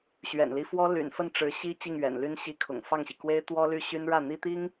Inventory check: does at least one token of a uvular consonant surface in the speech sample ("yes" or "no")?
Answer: no